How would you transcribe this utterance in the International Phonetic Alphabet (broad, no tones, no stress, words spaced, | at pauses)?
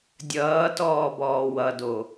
dʲʌːtɔːbɔː wʌdo